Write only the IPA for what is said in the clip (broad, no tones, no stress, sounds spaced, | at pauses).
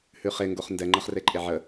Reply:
h ʉ χ e ŋ ɡ o χ n d ɛ ŋ͡ǃ ɤ χ r e ǃʼ e ʕ ə